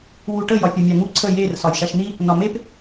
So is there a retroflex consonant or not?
yes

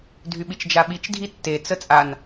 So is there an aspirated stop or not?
no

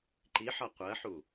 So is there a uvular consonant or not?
yes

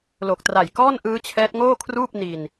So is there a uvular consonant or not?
no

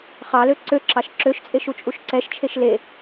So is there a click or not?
yes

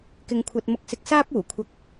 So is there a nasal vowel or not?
no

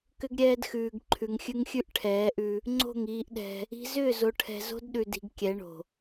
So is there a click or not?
yes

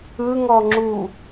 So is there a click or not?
yes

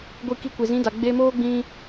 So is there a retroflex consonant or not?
no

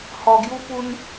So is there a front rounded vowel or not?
no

